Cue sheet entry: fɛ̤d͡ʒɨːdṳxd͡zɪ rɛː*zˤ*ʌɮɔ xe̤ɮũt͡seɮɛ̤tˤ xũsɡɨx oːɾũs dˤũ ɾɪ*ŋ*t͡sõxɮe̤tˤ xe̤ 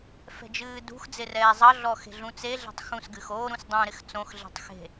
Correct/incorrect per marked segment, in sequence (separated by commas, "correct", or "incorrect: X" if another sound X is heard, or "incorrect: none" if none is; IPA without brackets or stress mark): correct, incorrect: x